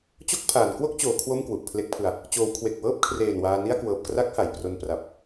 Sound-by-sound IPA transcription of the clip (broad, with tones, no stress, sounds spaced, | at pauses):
t͡ɕ o˥˩ k̚ pʰ aː˩˦ n k w o˥˩ k̚ t͡ɕ oː˩˦ kʰ w o˥˩ m k w u˨˩ ʔ pʰ l e˦˥ k̚ pʰ ɯ˧ a̯ | t͡ɕ oː˩˦ w kʰ w e˨˩ k̚ w ɤː˥˩ p̚ kʰ r eː˨˩ n w aː˧ n i˥˩ a̯ k w ɤː˨˩ p̚ k r a˦˥ k̚ h a˩˦ j p r o˧ n p r a˨˩ p̚